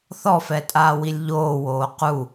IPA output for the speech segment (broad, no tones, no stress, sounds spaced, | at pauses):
θ ɔ f ɛ tʼ aː w i lʲ ʎ oː w oː q u